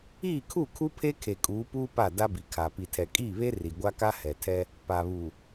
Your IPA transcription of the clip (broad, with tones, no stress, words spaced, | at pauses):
iː˦˨kʰu˦˨kʰu˦pʰe˦ kʰe˨kʼuː˨˦puː˦ pa˦˨ da˦bi˨kʰa˨ pi˨tʰɛ˨kʼiː˦˨βe˦ ri˨ɡʷa˦ka˦ hɛ˨tʰɛ˦ | pa˨βu˨